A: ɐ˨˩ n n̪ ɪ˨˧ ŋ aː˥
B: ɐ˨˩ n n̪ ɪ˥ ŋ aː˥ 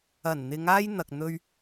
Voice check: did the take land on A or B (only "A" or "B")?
A